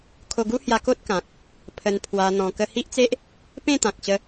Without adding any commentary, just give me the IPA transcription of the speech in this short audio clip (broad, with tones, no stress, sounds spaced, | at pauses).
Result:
kʰ o˧ ɡ u˦ h j a˧ k o˦ t̚ k ã˨ k̚ | pʰ ə˧ n pʰ w a˧ n̪ ɔ̃˧ k ə˧ h i˦ ʔ t͡s e˦ ʔ | p ẽ˥˧ t̪ ã˨ k̚ ɕ ə˧